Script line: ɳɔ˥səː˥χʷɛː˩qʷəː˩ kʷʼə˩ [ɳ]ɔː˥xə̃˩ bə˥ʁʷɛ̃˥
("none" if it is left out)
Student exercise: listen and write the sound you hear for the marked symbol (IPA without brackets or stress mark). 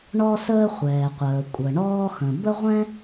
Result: ɳ